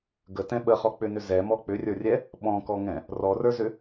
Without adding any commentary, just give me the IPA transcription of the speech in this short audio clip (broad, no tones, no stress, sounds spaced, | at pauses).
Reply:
ɡ ə t ɛ̃ ɓ ə χ ɔ k͡p ʏ n ʏ z ɛ m ɔ k͡p ʏ rʲ ə˞ rʲ ɛ | ɓ ɔ̃ k ɔ ŋ ɛ̃ | r ɔ r ə˞ z ʏ